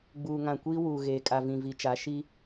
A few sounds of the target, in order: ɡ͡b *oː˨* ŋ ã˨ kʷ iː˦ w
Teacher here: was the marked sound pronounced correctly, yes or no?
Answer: no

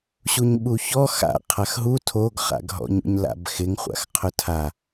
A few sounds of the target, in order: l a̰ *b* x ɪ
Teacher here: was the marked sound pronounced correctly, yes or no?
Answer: yes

